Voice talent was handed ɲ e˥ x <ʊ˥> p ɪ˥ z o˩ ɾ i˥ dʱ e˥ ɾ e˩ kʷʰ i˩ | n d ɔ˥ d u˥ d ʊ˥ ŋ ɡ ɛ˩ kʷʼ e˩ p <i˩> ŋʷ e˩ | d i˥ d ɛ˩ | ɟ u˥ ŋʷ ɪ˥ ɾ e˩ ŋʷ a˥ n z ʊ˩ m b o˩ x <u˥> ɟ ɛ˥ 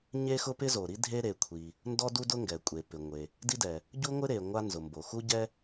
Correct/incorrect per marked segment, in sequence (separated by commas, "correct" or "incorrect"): correct, incorrect, correct